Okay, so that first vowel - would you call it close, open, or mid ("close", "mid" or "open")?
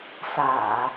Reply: open